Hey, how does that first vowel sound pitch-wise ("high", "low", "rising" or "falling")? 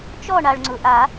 falling